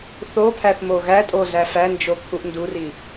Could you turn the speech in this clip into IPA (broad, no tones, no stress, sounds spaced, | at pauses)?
θ o pʰ æ θ m o ɣ æ tʼ o z æ f æ n d͡ʒ o kʰ u ʔ n d u r i